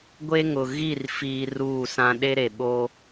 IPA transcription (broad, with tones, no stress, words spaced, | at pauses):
ɡʷe˦ ŋʊ˨ ɣi˦˨r fiː˦ ruː˦˨sã˦ ɗe˦ɾe˨ ɓo˦